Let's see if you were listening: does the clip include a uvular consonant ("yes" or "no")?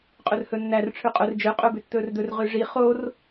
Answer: yes